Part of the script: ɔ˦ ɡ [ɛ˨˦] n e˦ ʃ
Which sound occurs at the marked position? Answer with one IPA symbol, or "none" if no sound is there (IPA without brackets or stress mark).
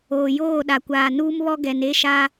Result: ɛ˨